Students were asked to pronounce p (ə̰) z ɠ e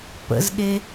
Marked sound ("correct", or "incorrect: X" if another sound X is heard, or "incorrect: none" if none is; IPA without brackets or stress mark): correct